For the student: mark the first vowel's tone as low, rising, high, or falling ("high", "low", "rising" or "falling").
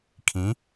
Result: rising